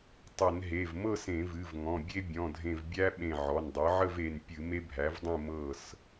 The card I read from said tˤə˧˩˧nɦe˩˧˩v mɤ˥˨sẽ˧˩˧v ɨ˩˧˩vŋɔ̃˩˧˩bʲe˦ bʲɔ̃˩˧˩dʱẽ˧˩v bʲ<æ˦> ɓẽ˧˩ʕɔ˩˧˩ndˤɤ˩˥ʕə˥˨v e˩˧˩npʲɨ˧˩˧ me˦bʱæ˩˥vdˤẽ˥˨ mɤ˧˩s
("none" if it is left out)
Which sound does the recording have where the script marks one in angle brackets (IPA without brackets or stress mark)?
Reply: æ˦